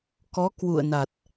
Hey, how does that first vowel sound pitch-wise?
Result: rising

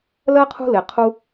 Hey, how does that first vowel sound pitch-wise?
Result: high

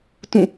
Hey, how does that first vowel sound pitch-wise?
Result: falling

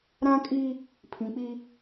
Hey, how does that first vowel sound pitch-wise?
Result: high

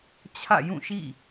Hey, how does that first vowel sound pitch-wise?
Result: falling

